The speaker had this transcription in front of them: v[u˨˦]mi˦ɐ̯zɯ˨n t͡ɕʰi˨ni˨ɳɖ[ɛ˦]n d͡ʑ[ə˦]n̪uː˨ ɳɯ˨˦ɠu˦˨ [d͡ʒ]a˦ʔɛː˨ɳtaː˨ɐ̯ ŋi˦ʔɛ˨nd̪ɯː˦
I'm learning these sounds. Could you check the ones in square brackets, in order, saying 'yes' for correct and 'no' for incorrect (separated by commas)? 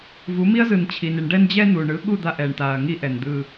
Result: yes, yes, no, no